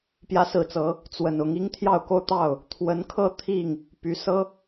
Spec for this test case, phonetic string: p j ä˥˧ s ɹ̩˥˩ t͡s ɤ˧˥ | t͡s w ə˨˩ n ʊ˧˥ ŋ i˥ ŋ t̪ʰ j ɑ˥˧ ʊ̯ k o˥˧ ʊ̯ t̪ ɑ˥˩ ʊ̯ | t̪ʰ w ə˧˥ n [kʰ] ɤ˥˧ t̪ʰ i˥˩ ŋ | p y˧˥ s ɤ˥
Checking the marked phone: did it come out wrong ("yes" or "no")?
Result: no